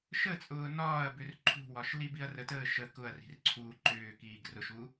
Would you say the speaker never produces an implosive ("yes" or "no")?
yes